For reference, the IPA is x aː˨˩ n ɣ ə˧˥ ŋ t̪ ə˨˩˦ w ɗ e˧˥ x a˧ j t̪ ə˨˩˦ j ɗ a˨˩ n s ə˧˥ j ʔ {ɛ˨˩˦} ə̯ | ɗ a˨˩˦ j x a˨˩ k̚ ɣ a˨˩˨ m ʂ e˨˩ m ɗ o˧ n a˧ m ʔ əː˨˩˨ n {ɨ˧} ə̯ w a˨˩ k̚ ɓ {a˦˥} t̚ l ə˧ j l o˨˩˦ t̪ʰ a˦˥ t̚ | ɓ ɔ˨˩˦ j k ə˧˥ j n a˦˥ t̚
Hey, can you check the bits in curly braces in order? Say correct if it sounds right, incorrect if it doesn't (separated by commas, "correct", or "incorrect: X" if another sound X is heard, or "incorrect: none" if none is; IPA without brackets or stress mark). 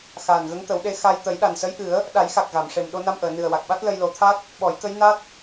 incorrect: ɨ˨˩˦, incorrect: ɨ˨˩, correct